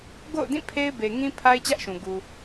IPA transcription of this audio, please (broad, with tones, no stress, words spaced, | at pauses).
ɡo̰˦˨ʊ̯dĩ˦˨ pʰe˦ɪ̯be˨ŋĩ˦ pʰa˦ɪ̯t͡ɕä˦ʔʃũ˨ ɡu˨